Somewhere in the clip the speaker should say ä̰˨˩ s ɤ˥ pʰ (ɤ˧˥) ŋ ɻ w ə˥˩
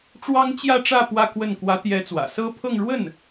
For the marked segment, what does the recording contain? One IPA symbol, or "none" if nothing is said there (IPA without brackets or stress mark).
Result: ɤ˥˧